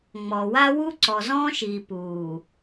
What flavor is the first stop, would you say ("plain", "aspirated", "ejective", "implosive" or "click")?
click